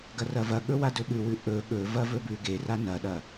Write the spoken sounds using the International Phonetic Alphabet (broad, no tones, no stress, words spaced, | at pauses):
ɡɐrɐvɐɠɵ wadɵɓʉwʉ ʔɵ ɠɵvɐ vɵbʉɡera nɐɗɐ